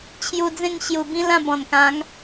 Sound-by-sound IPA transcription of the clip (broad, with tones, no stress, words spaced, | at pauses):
t͡ɕʰju˧d͡zẽ˥˧ŋ ɕju˨˩bĩ˦lã˥˧bɔ̃˨˩n kã˨˦ŋ